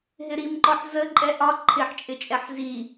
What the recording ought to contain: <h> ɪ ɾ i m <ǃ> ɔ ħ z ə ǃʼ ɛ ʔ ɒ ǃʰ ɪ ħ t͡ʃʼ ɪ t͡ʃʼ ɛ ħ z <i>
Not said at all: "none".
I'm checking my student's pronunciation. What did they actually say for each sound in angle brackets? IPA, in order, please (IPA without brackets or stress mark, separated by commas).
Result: ɦ, ǃ, i